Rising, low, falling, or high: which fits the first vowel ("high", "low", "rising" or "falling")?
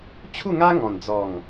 falling